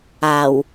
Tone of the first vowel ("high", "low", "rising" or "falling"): low